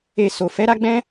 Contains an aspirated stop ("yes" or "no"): no